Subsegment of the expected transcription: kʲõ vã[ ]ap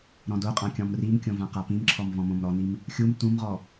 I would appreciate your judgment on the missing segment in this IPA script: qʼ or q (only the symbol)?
q